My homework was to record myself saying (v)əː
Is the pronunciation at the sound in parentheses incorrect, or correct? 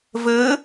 correct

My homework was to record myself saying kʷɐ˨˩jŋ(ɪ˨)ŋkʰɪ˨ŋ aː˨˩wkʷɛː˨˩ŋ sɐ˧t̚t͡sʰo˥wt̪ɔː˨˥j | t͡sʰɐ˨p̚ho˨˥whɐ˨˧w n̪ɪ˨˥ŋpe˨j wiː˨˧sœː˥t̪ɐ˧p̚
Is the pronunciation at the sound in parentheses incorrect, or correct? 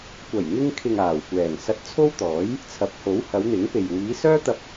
incorrect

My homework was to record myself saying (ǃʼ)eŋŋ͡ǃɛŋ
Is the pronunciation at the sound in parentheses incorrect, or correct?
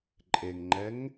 correct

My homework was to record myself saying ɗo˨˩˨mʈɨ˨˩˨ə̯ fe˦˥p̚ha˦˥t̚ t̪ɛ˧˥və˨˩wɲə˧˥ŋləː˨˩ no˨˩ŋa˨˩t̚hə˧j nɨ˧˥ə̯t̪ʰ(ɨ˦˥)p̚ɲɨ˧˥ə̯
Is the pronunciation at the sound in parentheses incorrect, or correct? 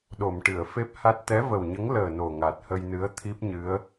incorrect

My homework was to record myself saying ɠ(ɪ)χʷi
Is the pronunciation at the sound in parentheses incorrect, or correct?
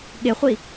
correct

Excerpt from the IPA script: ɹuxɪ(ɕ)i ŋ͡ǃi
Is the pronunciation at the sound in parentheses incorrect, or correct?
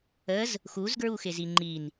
incorrect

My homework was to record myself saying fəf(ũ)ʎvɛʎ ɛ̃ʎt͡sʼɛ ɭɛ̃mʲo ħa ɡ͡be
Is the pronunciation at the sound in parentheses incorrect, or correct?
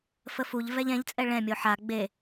incorrect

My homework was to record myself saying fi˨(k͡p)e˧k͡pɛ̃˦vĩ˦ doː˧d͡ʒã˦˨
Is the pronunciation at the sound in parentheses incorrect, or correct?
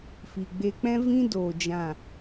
incorrect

